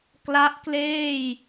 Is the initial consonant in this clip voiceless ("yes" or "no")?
yes